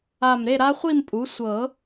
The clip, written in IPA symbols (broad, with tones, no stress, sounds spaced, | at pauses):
a˧˩ m ɾ e˥˨ ɾ a˦˥ χʷ i˥˨ m pʼ u˩˥ sʷ ɤ˨˩˦